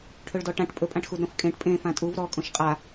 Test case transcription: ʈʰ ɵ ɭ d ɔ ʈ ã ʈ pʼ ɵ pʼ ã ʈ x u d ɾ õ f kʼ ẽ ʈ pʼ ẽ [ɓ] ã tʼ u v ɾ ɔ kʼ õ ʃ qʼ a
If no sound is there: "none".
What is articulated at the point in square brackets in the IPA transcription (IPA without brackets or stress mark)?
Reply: f